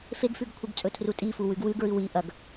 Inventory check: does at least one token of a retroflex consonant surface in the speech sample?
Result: no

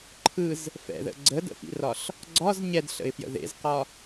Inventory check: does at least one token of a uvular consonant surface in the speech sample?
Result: yes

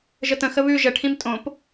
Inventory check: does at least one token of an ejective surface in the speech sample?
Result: yes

